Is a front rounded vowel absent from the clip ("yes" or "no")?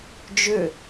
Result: no